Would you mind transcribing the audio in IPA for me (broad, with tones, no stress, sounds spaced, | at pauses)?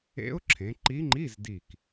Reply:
ḛ˧˥ ʊ̯ ǁʰ ẽ˩˧ ǃ i˧˥ ŋ͡ǃ i˧˥˧ z d i˧˩ k